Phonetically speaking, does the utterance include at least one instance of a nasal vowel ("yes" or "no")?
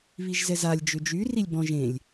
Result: yes